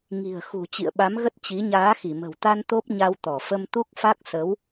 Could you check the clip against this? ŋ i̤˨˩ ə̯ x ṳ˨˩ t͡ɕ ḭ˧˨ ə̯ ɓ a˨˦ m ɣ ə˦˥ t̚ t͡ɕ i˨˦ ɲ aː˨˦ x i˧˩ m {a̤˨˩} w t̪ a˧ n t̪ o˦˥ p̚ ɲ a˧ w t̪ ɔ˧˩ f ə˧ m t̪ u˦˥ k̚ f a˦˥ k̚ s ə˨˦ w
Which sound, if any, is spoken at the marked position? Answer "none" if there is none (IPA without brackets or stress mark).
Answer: ə̤˨˩